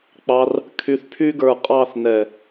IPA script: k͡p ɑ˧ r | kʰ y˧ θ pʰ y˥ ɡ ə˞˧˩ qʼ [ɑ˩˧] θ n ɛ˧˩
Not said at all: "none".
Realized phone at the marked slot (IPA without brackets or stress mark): ɑ˥˧